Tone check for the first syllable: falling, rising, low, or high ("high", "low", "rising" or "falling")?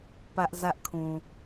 high